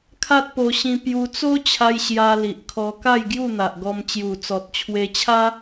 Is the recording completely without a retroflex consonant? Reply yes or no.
yes